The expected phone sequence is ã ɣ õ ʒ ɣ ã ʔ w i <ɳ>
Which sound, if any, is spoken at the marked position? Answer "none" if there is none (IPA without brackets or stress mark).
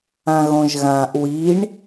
ɳ